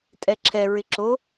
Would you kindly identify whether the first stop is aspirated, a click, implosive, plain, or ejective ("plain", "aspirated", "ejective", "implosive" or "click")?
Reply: ejective